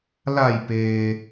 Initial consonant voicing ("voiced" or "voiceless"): voiced